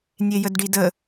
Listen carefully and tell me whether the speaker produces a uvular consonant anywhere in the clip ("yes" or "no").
no